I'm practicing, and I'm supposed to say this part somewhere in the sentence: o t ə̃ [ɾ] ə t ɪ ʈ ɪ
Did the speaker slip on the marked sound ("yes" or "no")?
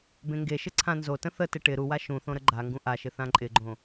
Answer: yes